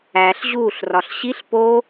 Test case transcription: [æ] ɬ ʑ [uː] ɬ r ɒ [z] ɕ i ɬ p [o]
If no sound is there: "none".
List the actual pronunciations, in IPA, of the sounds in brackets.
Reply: æ, uː, ɬ, o

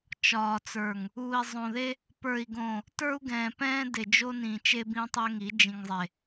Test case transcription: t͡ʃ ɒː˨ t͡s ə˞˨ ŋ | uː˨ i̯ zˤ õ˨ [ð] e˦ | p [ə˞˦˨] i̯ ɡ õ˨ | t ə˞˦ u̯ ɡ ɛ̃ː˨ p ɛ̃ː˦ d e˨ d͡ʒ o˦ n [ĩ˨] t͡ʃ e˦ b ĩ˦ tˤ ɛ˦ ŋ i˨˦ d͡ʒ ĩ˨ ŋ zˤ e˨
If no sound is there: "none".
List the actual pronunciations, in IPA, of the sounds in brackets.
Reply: ð, ə˞˨, ĩ˨

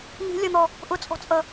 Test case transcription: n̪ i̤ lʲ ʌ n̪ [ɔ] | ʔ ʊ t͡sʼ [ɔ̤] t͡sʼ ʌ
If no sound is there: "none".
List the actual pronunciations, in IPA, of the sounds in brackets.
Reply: ɔ, ɔ̤

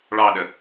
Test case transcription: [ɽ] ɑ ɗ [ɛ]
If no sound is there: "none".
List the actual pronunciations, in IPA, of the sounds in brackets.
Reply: ɭ, ə

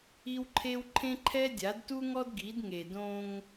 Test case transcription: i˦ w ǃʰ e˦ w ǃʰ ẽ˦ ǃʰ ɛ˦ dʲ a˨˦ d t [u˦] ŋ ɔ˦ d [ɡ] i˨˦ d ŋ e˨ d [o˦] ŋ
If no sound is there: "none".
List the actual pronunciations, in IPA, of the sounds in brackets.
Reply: u˦, ɡ, õ˦

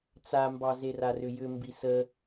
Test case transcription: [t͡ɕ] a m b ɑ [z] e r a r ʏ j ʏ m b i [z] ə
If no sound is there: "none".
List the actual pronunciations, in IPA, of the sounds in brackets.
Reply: t͡s, z, s

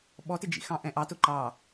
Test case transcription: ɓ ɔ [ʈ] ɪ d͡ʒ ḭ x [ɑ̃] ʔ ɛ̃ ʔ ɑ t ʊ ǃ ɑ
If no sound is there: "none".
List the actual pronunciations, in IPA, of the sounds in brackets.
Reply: t, ɑ̃

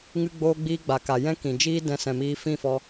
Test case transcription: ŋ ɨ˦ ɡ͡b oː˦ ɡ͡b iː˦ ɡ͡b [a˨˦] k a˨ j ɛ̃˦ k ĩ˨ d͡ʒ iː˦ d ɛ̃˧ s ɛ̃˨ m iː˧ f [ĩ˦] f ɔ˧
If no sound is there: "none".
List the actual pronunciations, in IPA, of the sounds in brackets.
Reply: a˨, ĩ˦˨

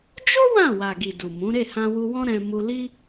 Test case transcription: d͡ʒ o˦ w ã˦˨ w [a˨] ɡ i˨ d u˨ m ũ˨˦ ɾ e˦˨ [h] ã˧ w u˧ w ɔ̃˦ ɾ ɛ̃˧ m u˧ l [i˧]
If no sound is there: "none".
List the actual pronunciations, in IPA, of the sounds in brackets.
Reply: a˨, h, i˦

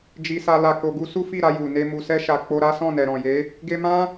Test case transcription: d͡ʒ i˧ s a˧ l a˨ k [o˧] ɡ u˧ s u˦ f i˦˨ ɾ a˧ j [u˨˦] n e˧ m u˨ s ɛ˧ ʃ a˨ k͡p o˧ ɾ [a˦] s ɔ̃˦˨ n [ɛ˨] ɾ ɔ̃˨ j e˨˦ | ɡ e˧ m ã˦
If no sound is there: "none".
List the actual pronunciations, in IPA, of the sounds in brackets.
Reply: o˨, u˨, a˦, ɛ˨

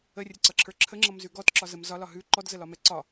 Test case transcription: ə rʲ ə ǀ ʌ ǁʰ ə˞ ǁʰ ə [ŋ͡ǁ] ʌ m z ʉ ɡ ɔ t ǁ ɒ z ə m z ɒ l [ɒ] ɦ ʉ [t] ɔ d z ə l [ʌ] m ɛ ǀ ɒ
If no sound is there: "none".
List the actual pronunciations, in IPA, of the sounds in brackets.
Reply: ŋ͡ǁ, ɒ, ǃ, ɒ

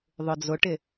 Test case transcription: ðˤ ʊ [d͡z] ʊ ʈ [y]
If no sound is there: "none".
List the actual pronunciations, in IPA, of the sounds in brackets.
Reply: d͡z, ɪ

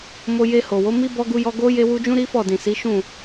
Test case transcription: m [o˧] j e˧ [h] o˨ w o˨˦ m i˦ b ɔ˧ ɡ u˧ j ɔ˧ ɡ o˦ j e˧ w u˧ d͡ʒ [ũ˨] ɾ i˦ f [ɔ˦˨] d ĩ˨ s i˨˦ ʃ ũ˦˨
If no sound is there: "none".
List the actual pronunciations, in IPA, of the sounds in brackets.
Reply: o˧, h, ũ˦, ɔ˦˨

